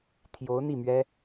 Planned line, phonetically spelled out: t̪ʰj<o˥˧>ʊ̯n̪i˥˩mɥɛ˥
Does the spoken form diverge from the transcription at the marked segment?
yes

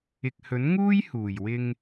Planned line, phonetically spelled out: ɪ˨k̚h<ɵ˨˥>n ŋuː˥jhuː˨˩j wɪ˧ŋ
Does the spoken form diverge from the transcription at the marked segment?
no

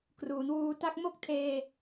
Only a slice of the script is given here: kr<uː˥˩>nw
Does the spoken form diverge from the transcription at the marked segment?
yes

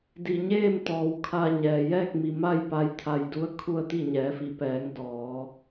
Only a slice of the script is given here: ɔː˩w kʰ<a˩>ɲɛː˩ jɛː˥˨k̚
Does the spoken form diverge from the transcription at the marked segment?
yes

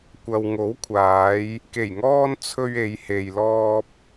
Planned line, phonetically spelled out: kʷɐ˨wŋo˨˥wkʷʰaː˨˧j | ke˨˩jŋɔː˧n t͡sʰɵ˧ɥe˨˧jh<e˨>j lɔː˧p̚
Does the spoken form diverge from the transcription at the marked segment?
no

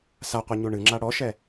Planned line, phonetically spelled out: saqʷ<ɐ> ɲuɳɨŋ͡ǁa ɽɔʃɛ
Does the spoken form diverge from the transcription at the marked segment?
no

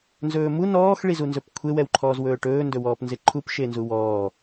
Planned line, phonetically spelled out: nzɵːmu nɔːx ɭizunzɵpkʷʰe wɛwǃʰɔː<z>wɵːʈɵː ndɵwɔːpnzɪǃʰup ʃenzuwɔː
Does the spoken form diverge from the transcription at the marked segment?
no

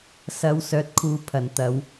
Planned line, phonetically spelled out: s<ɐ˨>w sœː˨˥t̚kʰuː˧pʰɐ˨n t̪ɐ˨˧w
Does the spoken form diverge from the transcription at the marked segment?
yes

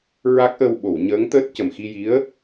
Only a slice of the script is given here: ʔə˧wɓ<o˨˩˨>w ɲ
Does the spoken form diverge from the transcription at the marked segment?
no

